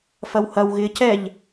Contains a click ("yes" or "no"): no